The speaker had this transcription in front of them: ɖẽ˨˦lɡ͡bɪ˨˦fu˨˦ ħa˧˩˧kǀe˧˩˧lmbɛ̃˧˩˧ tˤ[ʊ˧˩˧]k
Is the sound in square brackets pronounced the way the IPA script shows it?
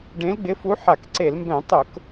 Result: yes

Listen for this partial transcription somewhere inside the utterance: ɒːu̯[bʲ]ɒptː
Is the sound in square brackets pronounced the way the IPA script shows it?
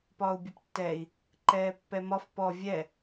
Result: yes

